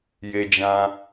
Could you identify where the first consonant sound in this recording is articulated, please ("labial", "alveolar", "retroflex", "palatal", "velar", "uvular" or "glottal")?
palatal